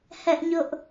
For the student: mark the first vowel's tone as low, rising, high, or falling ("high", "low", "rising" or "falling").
high